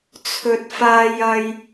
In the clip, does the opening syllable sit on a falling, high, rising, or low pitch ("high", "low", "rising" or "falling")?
low